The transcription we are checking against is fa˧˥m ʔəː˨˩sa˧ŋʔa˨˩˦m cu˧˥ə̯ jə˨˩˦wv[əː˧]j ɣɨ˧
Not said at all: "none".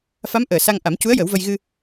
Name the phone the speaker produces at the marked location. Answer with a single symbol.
ə˧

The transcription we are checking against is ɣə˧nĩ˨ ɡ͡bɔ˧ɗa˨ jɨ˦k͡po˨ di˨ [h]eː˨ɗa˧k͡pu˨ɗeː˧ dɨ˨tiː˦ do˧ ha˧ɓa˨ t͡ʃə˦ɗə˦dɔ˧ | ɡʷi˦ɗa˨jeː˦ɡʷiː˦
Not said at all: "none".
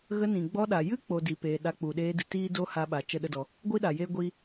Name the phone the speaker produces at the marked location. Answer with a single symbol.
p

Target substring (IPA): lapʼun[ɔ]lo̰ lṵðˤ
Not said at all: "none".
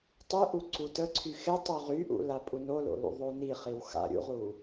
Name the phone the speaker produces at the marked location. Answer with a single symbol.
o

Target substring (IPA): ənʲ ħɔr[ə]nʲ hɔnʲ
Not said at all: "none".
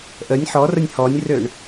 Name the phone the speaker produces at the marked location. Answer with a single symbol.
ə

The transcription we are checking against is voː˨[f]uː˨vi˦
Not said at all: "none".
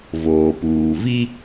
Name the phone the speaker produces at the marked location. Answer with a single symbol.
p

